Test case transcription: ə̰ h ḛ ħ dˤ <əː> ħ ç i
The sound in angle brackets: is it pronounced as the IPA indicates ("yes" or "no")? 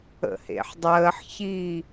yes